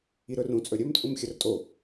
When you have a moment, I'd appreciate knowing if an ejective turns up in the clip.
yes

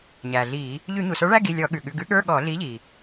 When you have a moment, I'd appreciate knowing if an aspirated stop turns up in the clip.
no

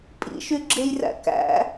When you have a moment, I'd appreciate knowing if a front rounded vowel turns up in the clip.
yes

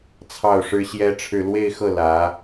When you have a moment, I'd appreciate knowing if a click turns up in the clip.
no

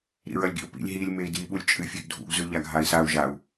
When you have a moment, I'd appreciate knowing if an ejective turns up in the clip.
yes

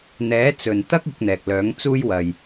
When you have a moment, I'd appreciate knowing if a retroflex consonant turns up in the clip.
no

